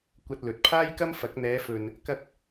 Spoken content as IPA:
kʷ ɐ˧ t̚ l ɵ˨ t̚ pʰ aː˥ j k ɐ˥ m f ɐ˨˥ k̚ n̪ ɛː˨˧ f ɵ˨ n | k ɐ˧ k̚

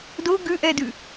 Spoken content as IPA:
d o ɡ ʉ ʔ ɛ d ʉ

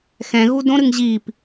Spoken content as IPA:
x ɛ̃ ɣ u d õ ɾ ɨ ŋ ʑ i p

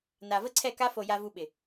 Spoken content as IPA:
n a˨ v ə˦ ǀʰ ɛ˦˨ k a˧ f o˨ j a˧ v u˧ ɓ ɪ˨

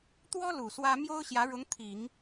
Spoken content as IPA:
t̪ w ɔ˥ l u˨˩ s w ä˥ m j o˥ ʊ̯ ɕ j ä˧˥ ɻ ʊ˧˥ ŋ t̪ʰ i˨˩˦ ŋ

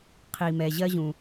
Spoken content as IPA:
qʰ i˩ m ɛ˩ ʑ ɜ˥ ʑ ũ˩

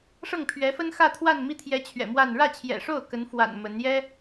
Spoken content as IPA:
ʂ ɤ˥˩ ŋ pʰ ɥ ɛ˧˥ f ə˥ n x ä˥˧ t̪ʰ w a˥˧ n m i˥˩ t̪ʰ j ɛ˧˥ t͡ɕʰ ɥ ɛ̰˨˩ m w a˥˧ n ɻ ä˥˩ t͡ɕʰ j ɛ̰˨˩ ʂ o˥˩ ʊ̯ k ə˧˥ n f w a̰˨˩ n m ə˧˥ n j ɛ˥

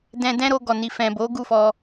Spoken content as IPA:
d ɛ̃˧ d ɛ̃˦ ɾ o˧ ɡ ɔ˨ n i˨ f ɛ̃˨ b o˨˦ ɡ u˦˨ f ɔ˧

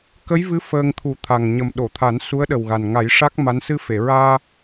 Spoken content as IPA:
k ə˧˥ j v ɨ˧˥ f əː˧ ŋ t̪ʰ u˨˩˦ t̪ʰ a˨˩ ŋ ɲ ə˨˩ m ɗ o˨˩˨ t̪ʰ a˨˩˦ n s u˧˥ ə̯ ɗ ə˨˩ w ɣ a˨˩ n ŋ a˨˩˦ j ʂ a˦˥ k̚ m a˧˥ n s ɨ˧ f e˨˩˨ ɹ aː˧

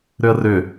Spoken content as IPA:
ɾ ʏ ə̯ r ʏ

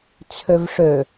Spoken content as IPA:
t͡sʰ ø v ʂ ø

